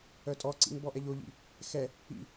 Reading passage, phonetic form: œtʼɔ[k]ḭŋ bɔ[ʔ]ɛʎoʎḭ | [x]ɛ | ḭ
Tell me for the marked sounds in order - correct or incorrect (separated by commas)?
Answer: incorrect, correct, correct